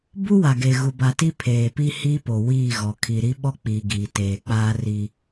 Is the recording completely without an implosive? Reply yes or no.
no